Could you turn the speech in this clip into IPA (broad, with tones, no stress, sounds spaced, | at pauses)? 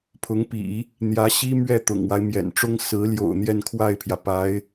pʰ ʊ˧˥ ŋ p ḭ˨˩˦ | n̪ j ä˧˥ ɕ i˥ m ɥ ɛ˥˩ t̪ ʊ̰˨˩ ŋ w a˦ ɪ̯ m j ɛ̰˨˩ n ʈ͡ʂ ʊ˥ ŋ s ɹ̩˧˥ l j o̰˨˩ ʊ̯ n̪ j ɛ˥˧ n kʰ w a˥˩ ɪ̯ pʰ j ä˩ p a˧˥ ɪ̯